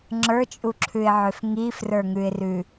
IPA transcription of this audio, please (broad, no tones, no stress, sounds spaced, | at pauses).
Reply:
ŋ͡ǁ ə˞ t͡ʃʼ u ǁʰ ʉ ɪ̯ ʕ ø f ŋ i f r ə˞ ŋ ʉ ɪ̯ r ʉ